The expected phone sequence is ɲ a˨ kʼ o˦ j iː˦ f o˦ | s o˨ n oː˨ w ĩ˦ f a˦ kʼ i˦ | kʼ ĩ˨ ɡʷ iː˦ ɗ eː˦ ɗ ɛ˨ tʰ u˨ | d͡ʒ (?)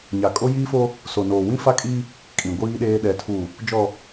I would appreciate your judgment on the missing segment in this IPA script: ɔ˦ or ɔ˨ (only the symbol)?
ɔ˨